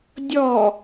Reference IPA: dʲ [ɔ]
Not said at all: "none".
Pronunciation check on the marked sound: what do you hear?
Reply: ɔ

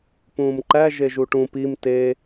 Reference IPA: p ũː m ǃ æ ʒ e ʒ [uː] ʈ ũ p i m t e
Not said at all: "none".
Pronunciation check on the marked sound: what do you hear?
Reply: u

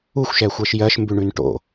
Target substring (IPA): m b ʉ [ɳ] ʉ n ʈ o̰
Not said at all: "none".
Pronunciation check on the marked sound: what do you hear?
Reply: ɳ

